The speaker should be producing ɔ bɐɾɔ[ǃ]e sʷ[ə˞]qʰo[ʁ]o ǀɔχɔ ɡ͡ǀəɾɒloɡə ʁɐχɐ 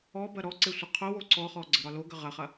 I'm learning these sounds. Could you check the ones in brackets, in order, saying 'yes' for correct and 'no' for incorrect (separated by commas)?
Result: no, no, no